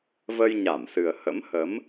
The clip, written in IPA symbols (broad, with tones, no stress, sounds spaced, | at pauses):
v ə˧ j ɲ a˧˩ m s ɨ˨˩ ə̯ h ə̰˧˥ m h ə˨˦ m